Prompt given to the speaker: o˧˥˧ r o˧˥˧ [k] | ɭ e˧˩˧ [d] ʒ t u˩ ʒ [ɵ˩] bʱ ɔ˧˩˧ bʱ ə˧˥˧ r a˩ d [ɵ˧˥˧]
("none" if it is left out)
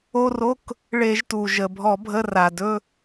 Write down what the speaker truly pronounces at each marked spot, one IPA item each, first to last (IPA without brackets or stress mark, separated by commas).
k, none, ə˩, ɵ˧˥˧